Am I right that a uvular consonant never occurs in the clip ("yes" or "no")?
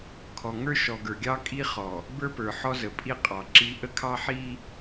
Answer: no